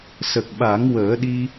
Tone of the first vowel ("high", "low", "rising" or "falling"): low